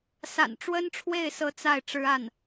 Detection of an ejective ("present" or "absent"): absent